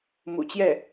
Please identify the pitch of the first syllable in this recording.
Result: low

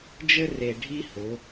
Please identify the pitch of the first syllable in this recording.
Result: high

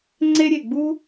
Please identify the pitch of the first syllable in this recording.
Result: high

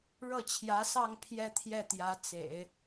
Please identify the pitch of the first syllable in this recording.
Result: falling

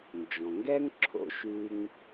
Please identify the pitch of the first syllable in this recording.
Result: low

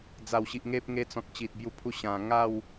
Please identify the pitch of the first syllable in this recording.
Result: low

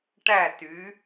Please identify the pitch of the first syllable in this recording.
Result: falling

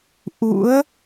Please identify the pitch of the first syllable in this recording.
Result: rising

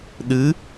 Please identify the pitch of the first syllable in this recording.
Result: rising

